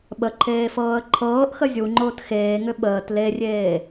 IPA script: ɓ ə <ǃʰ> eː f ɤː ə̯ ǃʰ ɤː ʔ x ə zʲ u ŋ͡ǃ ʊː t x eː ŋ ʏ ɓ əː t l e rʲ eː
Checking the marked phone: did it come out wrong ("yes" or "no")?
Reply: no